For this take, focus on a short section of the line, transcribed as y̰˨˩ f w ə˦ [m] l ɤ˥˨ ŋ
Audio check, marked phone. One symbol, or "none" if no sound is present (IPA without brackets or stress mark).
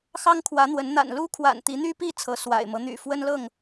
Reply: n